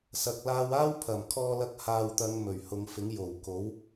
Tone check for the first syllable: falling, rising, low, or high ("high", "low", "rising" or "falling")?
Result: low